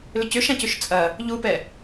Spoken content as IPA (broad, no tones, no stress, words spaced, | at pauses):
lʏcʏʃãcʏʃ t͡sʼɐ | ʎupɛ